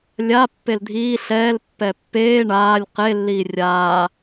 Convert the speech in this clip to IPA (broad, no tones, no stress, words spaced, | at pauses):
lʲa pːeldʱiː ɬɛːl pːɛpːeː ɳaːlʲ qelːiː rʲaː